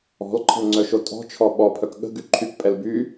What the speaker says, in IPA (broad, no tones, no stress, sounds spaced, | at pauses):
ɔ̤ l ǃʰ ə̤ l ŋ͡ǀ œ ʃ o tʼ ɔ̤ t͡ʃʰ ɔ ɓ ɔ pʰ œ k ɠ ə̤ ɡ y ǃʰ y k pʼ ɛ l b y